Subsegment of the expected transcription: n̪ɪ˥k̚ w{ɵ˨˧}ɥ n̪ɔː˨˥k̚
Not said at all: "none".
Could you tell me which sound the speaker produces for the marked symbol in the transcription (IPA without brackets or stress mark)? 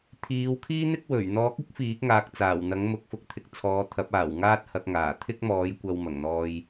ɵ˨˩